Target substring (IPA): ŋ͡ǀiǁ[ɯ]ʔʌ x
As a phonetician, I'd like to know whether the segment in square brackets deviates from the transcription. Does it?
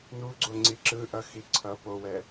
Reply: no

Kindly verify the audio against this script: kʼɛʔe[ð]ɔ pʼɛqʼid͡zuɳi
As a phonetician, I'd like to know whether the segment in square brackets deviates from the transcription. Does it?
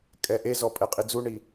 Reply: yes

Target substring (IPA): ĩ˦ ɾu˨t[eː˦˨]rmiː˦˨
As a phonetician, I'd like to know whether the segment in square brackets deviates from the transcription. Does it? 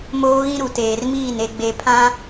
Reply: yes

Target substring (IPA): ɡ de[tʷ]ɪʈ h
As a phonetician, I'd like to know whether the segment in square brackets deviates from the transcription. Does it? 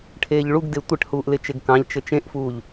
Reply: no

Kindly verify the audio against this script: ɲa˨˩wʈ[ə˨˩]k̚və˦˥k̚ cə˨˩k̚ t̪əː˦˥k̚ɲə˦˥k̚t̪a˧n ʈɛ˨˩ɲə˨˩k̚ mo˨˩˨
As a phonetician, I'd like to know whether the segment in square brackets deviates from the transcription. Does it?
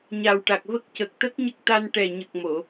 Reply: yes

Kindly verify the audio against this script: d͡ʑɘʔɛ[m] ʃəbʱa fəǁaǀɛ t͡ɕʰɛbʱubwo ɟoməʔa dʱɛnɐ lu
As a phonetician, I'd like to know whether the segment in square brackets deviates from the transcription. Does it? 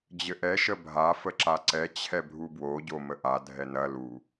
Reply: yes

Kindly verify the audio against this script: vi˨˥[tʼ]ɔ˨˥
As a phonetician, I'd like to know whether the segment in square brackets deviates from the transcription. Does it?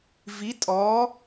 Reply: no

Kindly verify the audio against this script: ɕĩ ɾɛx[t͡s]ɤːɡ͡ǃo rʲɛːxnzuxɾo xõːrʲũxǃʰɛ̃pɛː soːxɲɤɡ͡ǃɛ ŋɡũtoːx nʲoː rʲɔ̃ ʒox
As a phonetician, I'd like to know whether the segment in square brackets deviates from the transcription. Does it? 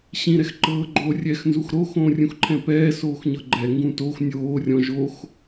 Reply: yes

